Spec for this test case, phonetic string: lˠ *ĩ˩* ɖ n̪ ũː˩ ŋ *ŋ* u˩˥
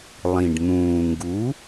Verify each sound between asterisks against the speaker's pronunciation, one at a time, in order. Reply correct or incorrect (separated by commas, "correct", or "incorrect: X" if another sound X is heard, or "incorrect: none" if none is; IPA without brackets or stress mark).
correct, incorrect: ɡ